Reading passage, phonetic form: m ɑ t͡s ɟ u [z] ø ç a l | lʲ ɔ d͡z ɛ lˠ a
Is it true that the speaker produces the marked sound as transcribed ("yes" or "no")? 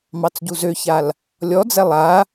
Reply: yes